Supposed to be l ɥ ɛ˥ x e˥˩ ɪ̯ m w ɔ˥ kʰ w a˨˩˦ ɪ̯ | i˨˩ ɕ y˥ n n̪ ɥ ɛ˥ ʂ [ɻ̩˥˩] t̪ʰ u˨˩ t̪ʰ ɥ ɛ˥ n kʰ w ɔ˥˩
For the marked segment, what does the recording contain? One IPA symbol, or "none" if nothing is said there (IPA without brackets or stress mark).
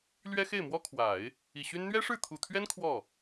ɻ̩˥˩